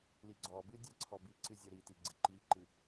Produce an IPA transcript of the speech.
l i ɡ͡ǀ ɔ b ɨ dʲ ɛ ǀʰ ɔ b i ǀ ɨ zʲ ɔ ɾ i t i ɡ͡ǀ ɨ ǃ i ǃ ɨ

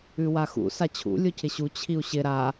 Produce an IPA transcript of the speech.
ʉ w a x ṵ s a t͡ɕʰ ṵ lʲ o cʰ ɪ ɕ u t͡ɕʰ i u̯ ɕ ɪ ɾ a

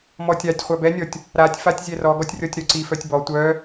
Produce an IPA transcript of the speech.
m ɔ tʲ a tʲ χʷ a b ɛ nʲ ɔ tʲ | ɾ a tʲ f a tʲ zʲ ɛ r ɔ ɡ ɔ tʲ rʲ ɔ tʲ ɾ œ ǀ i f œ tʲ b ɔ tʷ œ

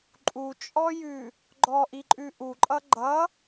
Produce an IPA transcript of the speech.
ǃʼ u t͡ʃʼ ɔ j ʉ | ɡ͡ǃ ɔ ʔ i ǃʼ ʉ ʔ u ǃʼ ʌ ɡ͡ǃ ʌ

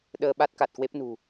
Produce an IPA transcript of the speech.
ɗ əː˧ ɓ a˦˥ t̚ k a˨˩ t̚ k w e˦˥ p̚ n ṳ˨˩

